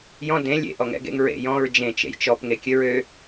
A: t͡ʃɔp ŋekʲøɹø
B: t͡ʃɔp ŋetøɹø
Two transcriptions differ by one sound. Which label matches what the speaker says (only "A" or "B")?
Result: A